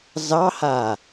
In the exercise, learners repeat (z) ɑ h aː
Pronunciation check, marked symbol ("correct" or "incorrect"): correct